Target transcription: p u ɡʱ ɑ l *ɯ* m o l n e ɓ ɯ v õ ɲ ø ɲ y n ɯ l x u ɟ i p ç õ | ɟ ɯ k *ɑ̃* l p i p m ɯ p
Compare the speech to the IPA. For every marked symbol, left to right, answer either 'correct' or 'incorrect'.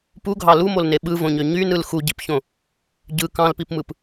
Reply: incorrect: u, correct

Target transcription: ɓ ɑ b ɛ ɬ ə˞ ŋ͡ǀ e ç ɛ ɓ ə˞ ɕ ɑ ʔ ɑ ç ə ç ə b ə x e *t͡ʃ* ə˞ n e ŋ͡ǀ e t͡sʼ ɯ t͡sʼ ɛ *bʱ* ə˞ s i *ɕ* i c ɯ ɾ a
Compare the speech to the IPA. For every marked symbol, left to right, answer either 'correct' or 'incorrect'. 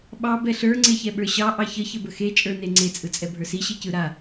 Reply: incorrect: t͡ʃʼ, correct, correct

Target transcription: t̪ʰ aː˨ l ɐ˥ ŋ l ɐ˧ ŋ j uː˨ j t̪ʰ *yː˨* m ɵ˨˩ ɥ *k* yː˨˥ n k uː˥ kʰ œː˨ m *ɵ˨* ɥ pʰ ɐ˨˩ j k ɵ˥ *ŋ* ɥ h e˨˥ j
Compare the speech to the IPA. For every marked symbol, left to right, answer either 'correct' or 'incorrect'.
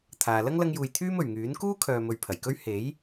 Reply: incorrect: yː˥, incorrect: ŋ, correct, incorrect: none

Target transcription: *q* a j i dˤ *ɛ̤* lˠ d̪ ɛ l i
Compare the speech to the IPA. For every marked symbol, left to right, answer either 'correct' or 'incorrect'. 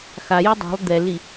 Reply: incorrect: x, correct

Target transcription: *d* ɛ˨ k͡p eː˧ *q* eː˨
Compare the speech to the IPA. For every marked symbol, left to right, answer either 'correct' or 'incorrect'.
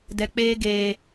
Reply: correct, incorrect: ɡ

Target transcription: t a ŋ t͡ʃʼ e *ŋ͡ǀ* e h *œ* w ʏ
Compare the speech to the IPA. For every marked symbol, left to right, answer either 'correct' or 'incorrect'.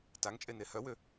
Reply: incorrect: n, correct

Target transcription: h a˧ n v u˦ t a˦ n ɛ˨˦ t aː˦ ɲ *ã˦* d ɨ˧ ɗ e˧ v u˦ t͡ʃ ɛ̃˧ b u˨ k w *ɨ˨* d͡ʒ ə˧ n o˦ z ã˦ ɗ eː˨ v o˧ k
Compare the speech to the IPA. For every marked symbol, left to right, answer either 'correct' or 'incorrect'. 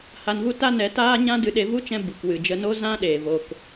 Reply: correct, correct

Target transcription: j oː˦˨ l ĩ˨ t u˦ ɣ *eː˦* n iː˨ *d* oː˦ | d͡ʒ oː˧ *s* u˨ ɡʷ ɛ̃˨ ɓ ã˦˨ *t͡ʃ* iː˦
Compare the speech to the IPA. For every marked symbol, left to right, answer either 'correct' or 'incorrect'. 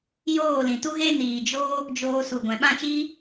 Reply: incorrect: e˦, incorrect: d͡ʒ, correct, correct

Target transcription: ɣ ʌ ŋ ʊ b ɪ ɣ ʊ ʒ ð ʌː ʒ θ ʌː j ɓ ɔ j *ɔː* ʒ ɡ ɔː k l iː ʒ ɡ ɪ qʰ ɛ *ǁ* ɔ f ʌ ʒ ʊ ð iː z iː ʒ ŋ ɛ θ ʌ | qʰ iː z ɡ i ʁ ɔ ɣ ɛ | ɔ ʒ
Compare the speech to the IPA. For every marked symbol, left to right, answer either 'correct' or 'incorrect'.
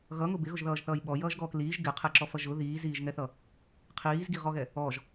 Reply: incorrect: ʌː, correct

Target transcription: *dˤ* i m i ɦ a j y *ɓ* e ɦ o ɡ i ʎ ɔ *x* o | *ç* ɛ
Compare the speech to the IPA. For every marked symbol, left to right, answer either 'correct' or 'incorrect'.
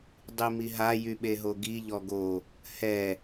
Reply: correct, correct, incorrect: ɡ, incorrect: h

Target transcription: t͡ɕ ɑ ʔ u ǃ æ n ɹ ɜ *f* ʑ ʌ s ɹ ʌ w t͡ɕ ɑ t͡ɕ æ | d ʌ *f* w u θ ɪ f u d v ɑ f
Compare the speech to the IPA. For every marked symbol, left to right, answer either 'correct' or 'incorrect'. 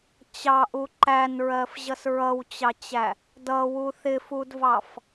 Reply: correct, incorrect: none

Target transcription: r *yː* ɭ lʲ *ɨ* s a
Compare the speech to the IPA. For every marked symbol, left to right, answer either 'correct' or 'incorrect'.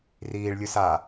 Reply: incorrect: iː, incorrect: ʉ

